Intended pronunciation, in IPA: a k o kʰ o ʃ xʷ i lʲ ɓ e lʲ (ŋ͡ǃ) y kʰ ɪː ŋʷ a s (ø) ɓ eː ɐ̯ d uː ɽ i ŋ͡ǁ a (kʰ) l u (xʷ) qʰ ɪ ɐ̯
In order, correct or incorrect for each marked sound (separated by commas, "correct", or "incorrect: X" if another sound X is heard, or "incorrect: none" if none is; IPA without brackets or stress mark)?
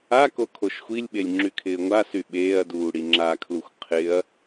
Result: incorrect: ŋ͡ǁ, incorrect: y, correct, correct